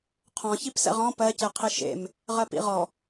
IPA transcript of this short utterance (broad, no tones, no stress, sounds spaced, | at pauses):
qʰ ɔ̃ ç i p s ɛ̰ ʁ ɔ̃ p ɜ c e qʰ i ʃ ḛ m | ʁ ɜ p ḭ ʁ ɔ